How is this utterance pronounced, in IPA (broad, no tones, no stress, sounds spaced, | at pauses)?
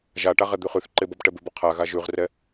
ʒ a ʈ a ʁ ɛ d̪ ʉ χ ʉ θ ǃ e b ɔ b ʈ ɛ b ʉ b ɔ qʰ a ɣ a ʒ ʉ ʁ r ɛ